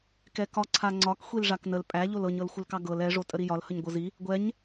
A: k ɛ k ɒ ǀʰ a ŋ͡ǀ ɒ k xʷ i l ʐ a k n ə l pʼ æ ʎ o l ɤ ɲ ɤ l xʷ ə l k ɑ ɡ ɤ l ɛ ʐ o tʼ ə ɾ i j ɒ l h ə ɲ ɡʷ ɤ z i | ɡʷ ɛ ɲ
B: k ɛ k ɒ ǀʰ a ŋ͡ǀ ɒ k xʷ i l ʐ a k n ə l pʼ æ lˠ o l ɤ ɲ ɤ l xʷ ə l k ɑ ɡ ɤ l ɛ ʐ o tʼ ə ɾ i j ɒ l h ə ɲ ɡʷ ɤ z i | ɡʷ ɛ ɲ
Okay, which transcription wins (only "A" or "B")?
A